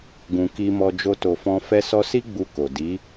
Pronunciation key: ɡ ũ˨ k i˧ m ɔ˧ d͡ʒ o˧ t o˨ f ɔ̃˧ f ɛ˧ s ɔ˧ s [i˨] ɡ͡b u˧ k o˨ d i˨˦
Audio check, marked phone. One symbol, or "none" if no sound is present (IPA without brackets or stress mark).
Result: i˦